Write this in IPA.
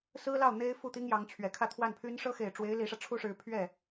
s ɹ̩˥ l ɑ˥˩ ʊ̯ n̪ e˥ ɪ̯ f u˥˩ t̪ i˥ ŋ j ɑ˧˥ ŋ t͡ɕʰ ɥ ɛ˨˩ kʰ ä˥˧ t̪ʰ w a˥˩ n pʰ y˥ n ʂ ɤ˥ x e˨˩ ɪ̯ ʈ͡ʂ w e˧˥ ɪ̯ l i˧˥ ʂ ä˧ ʈ͡ʂʰ u˥ ʂ ɻ̩˧˥ pʰ ɥ ɛ˥˩

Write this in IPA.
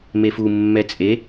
m e f u mː ɛ t͡sʼ e

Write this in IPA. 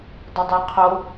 dˤ ʏ dˤ ɛ qʰ o

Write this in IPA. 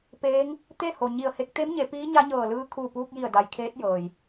p eː˧˥ ŋ | t̪ e˥˨ h o˩ ɲ i˧˩ ə̯ h e˧ k̚ t̪ e˧˥ m ɲ e˩˧ p iː˧˥ ɲ a˧˥ ɲ ɤː˧˩ l ɯː˧˥ kʰ uː˧˩ p uː˧ k̚ j i˧˩ ə̯ d a˩ j kʰ eː˧˥ t̚ j ɤː˩ j

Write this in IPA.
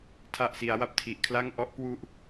tʰ a˨˩ ʔ s i˩˦ a̯ w a˨˩ p̚ tʰ i˨˩ ʔ kʰ l a˥˩ ŋ ʔ ɔ˦˥ ʔ k w u˦˥ ʔ

